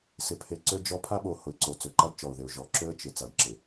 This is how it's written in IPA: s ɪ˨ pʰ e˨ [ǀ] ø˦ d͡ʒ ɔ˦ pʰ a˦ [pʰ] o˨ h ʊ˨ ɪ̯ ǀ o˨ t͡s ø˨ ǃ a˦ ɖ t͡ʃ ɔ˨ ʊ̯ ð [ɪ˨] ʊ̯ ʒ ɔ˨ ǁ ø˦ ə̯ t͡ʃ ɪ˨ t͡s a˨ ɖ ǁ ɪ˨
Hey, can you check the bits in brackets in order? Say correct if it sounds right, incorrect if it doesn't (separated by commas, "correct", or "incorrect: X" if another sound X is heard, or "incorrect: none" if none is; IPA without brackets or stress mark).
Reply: correct, incorrect: ɓ, correct